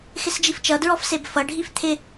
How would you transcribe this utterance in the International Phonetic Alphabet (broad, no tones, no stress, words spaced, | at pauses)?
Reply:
xɪsd͡ʒift͡ʃʌdɹɔf sebfʌɖʱif t̪ʰɪ